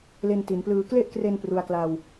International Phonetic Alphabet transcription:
l e˧ n t i˩˦ n p l ɯː˧ k l e˥˩ ʔ k r e˧ n p r u˧ a̯ k l a˧ w

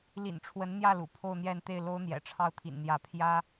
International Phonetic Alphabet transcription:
l ḭ˨˩ n ʈ͡ʂʰ w ə˧˥ n n̪ j ä˥˩ l ṵ˨˩ pʰ o˥˧ ʊ̯ n̪ j ɛ˥˧ n t̪ e˥˩ ɪ̯ l o˥ ʊ̯ n̪ j ɛ̰˨˩ ʈ͡ʂʰ ɑ˥˩ ʊ̯ t̪ʰ ḭ˨˩ n n̪ j ä˧˥ pʰ j ä˥

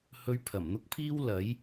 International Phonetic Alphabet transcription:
h ɵ˧ ɥ pʰ ɐ˨˩ m n̪ ʊ˥ k̚ pʰ iː˥ w l ɐ˨˥ j

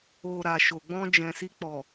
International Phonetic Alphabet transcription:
o˨ ɾ a˨ ʃ o˨ ɡ͡b ɔ̃˧ d͡ʒ ɛ̃˨ s i˧ k͡p ɔ˨

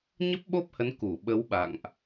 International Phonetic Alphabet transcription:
ɲ ə˦˥ p̚ ɓ o˦˥ p̚ h ə˨˦ n k u˧˩ ɓ ə˨˦ w ɓ a̰˧˨ ŋ ʔ

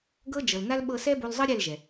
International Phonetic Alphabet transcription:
ɡ ɤ˦ d͡ʒ ɤ˨ l n a˦ l ɓ ɤ˧ s ɛ˦ b o˧ l zˤ ɤ˦ ɾʲ ɛ˦˨ l ʒ ɛ˨

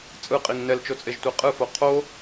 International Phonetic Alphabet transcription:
t͡sʼ ɯ qʼ i ŋ n ɛ l t͡ʃ o t͡sʼ e ʒ tʷ e qʼ ɯ f o qʰ o

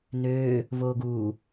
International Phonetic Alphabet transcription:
n øː | v oː ɡ uː

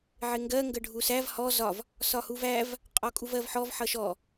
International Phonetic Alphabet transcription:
ʕ ɪ ŋ ɡ ɜ ŋ ɡ ə ɖʱ u s æ v h ɔ z ɒ v | s ɒ h u v æ v | qʼ ɔ kʼ u v ɜ v ħ ɔ v ħ ʌ ʃ ɔ

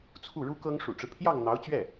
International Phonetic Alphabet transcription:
t͡sʰ u˥˩ ɻ u˥ k ɤ˥ ŋ ʂ ṵ˨˩ ʈ͡ʂ ɻ̩˦ pʰ j ɑ˥˩ ŋ n̪ ɑ˧˥ ʊ̯ t͡ɕ ɥ ɛ˥˩

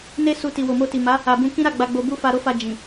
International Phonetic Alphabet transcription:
n e˦ s u˧ t i˨ w o˨ m o˧ t i˨ m a˨˦ | a˨ b ũ˧ k ĩ˦ ɾ a˦˨ ɡ͡b a˨ ɡ͡b o˨ b u˧ f a˧ ɾ o˦ f a˧ d͡ʒ ĩ˨

